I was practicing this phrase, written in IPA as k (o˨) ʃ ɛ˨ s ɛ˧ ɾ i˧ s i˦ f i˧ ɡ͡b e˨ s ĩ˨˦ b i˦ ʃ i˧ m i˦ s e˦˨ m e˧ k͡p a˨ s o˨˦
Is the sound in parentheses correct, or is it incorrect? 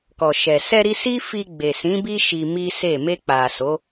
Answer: incorrect